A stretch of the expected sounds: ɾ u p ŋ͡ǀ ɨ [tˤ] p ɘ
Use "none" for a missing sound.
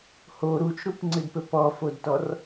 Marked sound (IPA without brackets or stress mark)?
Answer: d